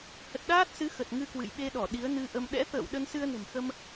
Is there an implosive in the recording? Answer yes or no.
yes